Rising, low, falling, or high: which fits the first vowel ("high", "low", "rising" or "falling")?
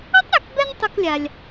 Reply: high